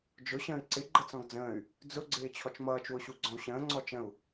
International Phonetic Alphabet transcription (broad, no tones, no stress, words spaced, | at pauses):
d͡ʒʊ ɕə̃ːi̯ǀɪ ɡ͡ǃət͡sɔ̃ɡd͡zə̃ːy̯ | d͡zʊɡ͡ǀɪː t͡ɕʰɔt͡ʃmʌːt͡ʃwʊɕu ɡ͡ǀɔ̃u̯ɕə̃ːŋ͡ǀɔ t͡ʃə̃u̯